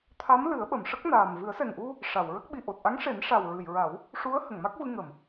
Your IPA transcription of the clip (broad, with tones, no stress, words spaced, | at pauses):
t̪ʰa˧˥m lɨ˨˩˦ə̯ɓə˨˩˨mʂə˦˥k̚naː˨˩m vɨ˨˩˦ə̯sɛ˨˩ŋʔu˧ | ʂa˨˩˨wɹə˦˥k̚ ɓi˨˩ʔo˨˩t̚ʔa˧˥ŋʂe˨˩˦n ʂa˨˩wɹɨ˨˩˨jɹa˨˩˦w | ʂu˧˥ə̯ hə˨˩˨ŋma˦˥k̚vɨ˧ ŋə˨˩˨m